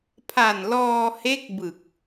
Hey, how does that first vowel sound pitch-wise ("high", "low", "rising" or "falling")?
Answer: low